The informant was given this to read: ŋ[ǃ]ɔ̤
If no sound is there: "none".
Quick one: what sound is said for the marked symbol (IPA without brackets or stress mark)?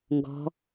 ɡ